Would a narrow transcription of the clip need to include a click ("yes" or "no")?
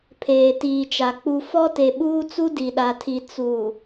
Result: no